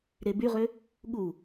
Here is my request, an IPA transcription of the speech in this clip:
ɾ e b y ʁ ø | ɠ u

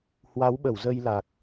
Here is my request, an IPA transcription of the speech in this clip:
h w a˨˦ w ɓ ə˧˩ w z ə˧ j l a˨˩ k̚

